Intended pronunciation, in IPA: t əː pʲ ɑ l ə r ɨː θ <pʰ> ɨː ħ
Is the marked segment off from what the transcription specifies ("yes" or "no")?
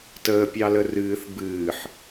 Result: yes